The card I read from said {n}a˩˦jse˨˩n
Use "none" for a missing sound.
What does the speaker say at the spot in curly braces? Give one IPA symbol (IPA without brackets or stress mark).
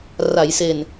r